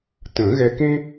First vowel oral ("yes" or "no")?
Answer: no